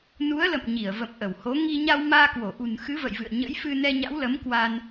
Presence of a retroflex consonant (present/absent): absent